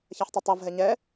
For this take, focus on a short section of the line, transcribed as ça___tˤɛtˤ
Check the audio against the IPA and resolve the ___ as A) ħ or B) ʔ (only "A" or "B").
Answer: A